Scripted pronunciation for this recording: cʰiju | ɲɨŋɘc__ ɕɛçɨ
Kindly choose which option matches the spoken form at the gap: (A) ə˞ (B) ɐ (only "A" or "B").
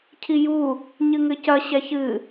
B